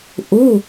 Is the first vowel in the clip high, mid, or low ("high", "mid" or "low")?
high